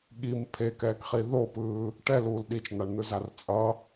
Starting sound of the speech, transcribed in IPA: ɠ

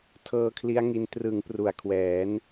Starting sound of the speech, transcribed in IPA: tʰ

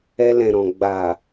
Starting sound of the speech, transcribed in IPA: ɛ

